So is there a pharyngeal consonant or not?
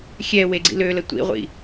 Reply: no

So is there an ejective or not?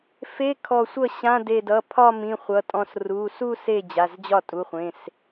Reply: yes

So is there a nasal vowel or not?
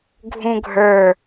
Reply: yes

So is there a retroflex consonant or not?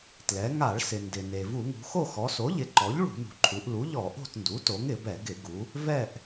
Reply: yes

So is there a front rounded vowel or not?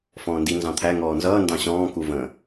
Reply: no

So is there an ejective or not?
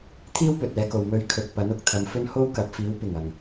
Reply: no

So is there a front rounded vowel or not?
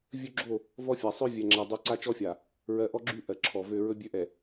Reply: yes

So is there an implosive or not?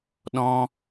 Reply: yes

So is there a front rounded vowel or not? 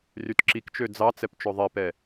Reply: yes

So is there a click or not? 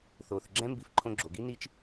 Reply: yes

